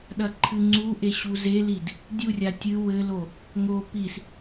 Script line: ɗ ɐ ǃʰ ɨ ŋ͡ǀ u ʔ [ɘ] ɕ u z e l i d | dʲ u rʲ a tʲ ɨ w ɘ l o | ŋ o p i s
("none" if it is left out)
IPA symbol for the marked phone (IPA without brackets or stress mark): e